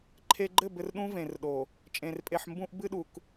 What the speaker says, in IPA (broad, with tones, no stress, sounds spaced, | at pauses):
ǃʰ e˨ ɡ͡ǃ ɘ˦˨ b ɘ˨ r ɗ ũ˦ v ẽ˨ r ɗ o˨ | t͡ʃʼ ẽ˨ r pʼ e˨ ħ m b ũ˨ ʔ b ɨ˦ ɗ u˨ k